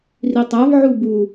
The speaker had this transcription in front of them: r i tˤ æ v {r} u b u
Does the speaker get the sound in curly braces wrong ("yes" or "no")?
yes